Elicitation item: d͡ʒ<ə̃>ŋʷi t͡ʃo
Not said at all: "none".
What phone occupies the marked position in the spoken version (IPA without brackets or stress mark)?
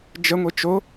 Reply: ə